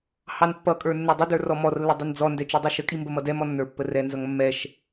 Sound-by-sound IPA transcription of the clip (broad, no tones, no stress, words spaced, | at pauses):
hɑnpːʌkʼə˞ nːɛdˤɪdə˞ rɔmɔrlːə dˤʌnd͡zɔndɛ t͡ʃudˤuʃəkʼi mbəmʌdɛmɔ nːə˞pːərɛnzʌŋ mːɛʃ